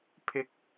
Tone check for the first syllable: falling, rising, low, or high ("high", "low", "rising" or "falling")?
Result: high